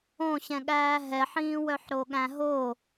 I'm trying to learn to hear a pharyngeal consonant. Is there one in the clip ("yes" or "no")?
yes